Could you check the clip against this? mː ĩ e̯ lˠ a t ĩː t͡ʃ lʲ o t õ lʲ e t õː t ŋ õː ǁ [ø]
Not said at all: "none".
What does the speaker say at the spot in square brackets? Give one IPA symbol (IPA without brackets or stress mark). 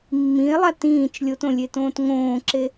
e